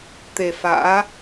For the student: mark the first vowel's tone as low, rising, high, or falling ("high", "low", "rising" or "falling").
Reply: low